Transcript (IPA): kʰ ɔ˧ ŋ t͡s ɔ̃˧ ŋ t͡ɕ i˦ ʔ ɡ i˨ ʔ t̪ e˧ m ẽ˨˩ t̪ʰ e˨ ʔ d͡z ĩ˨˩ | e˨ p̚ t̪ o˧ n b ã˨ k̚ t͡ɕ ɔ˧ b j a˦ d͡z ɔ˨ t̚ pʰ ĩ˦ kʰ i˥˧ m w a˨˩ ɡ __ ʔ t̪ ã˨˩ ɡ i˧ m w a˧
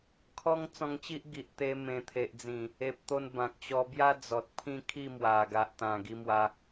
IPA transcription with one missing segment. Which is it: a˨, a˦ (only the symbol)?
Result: a˨